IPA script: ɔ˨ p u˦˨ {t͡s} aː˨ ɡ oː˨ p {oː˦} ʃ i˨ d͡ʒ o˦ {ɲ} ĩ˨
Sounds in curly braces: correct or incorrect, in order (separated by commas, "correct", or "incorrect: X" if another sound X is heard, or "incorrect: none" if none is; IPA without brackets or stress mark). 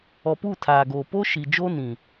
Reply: incorrect: tʰ, correct, incorrect: n